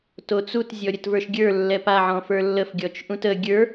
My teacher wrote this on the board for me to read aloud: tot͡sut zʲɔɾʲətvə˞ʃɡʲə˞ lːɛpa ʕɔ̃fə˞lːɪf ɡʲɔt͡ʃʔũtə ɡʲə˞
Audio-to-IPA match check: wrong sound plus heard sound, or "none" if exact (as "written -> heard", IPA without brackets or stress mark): ɪ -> ə